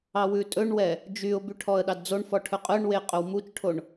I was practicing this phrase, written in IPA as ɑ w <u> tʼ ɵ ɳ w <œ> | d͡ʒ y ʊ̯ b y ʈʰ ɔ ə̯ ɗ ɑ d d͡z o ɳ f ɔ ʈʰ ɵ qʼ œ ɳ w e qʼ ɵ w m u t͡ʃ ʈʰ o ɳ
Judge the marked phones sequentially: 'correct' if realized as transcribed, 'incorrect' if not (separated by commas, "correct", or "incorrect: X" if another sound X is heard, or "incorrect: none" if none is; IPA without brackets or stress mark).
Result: incorrect: ʉ, incorrect: ɛ